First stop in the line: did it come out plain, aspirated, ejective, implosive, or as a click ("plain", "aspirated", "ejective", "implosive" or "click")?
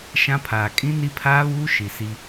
aspirated